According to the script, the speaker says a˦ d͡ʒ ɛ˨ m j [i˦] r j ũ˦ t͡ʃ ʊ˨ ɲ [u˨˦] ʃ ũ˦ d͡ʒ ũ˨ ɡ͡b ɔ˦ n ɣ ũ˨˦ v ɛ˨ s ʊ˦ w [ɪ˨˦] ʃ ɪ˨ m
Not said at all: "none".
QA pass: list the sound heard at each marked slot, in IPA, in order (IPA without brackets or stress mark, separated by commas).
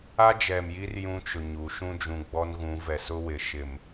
i˦, u˨˦, ɪ˨